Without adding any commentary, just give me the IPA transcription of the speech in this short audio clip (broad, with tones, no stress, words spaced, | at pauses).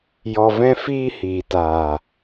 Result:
jɔ˨vɛ̃˧fiː˧ hiː˨taː˨